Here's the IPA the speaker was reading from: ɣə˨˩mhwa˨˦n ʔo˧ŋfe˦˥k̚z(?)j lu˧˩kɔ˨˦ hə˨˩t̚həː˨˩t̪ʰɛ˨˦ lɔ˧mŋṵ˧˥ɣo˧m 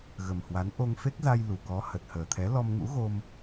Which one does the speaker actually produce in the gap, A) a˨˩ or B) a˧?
B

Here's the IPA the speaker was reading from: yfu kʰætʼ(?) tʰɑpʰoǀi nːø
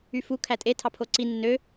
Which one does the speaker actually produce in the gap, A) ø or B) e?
B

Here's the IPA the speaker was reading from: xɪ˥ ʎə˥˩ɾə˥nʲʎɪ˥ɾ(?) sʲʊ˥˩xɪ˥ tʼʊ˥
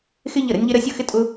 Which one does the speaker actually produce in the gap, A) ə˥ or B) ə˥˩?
A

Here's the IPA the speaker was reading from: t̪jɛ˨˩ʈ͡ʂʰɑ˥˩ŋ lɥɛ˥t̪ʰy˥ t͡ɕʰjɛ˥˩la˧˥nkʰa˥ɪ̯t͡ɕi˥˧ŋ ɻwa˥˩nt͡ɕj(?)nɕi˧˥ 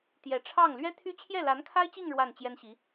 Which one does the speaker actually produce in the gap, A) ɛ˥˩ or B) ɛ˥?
B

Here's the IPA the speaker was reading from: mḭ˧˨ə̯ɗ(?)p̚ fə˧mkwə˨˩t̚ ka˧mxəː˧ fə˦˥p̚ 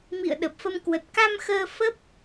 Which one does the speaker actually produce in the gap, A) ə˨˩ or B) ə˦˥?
A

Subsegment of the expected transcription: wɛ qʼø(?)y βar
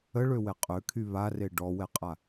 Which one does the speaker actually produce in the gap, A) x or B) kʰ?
B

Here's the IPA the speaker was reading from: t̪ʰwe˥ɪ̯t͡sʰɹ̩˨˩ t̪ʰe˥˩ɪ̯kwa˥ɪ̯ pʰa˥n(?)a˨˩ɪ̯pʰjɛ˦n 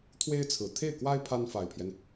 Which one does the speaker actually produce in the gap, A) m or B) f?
B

